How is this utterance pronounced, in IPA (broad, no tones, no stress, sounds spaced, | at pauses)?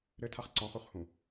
ɾ ɘ tʰ a χ ǀ ɔ̃ χ u χ h ũ